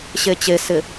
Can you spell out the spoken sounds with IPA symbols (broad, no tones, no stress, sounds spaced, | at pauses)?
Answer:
ɕ e t͡ɕ e s ɪ